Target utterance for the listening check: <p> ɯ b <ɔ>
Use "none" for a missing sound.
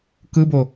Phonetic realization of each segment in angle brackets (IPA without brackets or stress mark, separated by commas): k, o